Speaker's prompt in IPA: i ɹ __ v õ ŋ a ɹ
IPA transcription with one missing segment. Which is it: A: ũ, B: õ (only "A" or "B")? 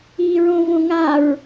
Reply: B